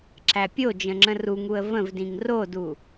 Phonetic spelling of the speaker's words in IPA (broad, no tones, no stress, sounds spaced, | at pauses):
ǁ æ pʲ o d͡ʒ ə̃ ŋ͡ǁ ə̃ r u ŋ u ə̯ v ə̃ v d ĩ ŋ r o d u